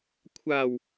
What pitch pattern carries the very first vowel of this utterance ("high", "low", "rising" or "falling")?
low